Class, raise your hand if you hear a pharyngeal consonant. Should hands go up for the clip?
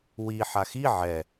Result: yes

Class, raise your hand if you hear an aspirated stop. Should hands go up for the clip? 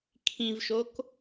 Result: yes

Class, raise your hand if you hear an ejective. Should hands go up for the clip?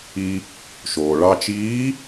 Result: no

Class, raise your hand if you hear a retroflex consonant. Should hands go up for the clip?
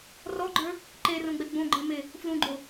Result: no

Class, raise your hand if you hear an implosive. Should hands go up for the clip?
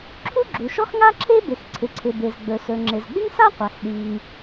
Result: yes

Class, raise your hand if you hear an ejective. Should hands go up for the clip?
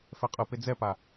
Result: yes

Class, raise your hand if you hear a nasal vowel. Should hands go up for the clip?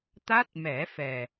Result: no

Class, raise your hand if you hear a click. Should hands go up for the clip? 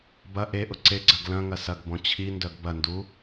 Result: yes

